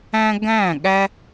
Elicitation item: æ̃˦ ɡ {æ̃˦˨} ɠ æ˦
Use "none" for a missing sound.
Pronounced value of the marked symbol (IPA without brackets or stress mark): æ̃˦˨